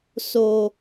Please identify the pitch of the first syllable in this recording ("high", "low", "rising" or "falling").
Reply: low